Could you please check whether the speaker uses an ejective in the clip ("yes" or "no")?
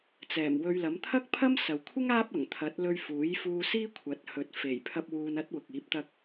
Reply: no